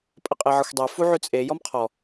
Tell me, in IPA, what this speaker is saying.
pʼ ə qʼ e ʕ ʌ xʷ dˤ ɛ f u ʕ ʉ t͡sʼ e j ɔ m qʰ ɔ

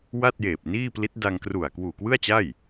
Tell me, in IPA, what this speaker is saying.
w a˥˩ t̚ j eː˨˩ p̚ n iː˥˩ p l i˦˥ t̚ d a˧ ŋ k r u˨˩ a̯ k w uː˨˩ k w ɯ˥˩ a̯ t͡ɕ a˥˩ j

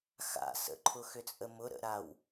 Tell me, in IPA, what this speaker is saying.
x a̰ s ə̰ ǃʰ ʊ x ʏ t͡sʼ ə m ʊ ɾ ə̰ ɾ a w

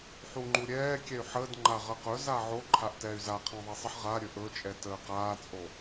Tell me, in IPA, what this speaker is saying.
ħ u ŋ͡ǃ u ɾʲ ɛː kʲ ɛ y̯ ħ əː d ŋ͡ǃ a ʁ ə q ɵ z a ʕ o ǃʰ a ʔ t ɛː y̯ z a qʰ ã ðˤ i sˤ ə ħ ʁ a ɾʲ ɵ ʔ ɵ t͡ʃʼ ɛ t əː q aː t͡sʼ o

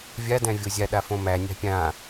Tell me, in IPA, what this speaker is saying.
vʲ a d æ̃ vʲ o zʲ a ɗ a f õ m æ nʲ a̤ pʲ ã

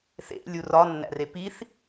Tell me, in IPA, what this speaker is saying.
θ ḛ lʲ u r ɒ nː æ̰ r e p i θ

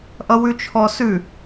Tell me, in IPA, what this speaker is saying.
ʔ ʌ w ʉ t͡ʃʰ ɔ s ʉ

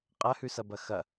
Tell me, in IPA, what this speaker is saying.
qʼ ɐ h ʉ s ɐ b ɐ x ɐ

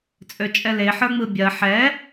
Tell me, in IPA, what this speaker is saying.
t͡sʼ ø t͡ʃʼ ɛ l e ħ ə˞ ŋ͡m ɯ bʲ ɜ ħ ɛ

